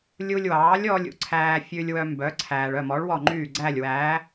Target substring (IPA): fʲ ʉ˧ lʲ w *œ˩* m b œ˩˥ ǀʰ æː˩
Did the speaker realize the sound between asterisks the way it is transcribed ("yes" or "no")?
no